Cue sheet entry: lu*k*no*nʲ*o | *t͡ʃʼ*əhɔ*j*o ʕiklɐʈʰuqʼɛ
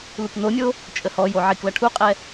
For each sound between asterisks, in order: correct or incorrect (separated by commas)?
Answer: correct, correct, correct, correct